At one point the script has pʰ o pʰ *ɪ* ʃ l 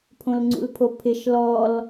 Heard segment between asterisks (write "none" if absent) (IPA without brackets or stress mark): ɪ